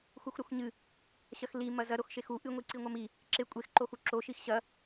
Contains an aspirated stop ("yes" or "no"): no